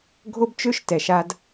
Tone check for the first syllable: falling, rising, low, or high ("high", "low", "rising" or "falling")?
high